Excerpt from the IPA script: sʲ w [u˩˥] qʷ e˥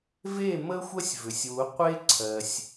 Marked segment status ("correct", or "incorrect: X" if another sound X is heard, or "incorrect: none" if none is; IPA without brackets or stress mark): correct